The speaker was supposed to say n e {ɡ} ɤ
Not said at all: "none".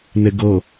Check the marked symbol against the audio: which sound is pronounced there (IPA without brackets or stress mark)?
ɡ